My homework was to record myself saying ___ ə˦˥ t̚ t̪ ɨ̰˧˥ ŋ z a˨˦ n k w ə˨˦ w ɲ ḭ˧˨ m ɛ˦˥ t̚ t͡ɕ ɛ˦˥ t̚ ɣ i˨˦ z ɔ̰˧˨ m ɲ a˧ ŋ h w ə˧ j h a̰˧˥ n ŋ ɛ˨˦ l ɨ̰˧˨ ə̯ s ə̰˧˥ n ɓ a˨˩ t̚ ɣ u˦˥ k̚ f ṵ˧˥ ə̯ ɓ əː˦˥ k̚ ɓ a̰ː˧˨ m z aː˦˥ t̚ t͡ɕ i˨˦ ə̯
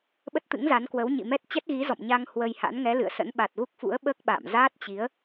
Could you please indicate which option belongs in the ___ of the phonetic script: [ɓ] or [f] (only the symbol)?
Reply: ɓ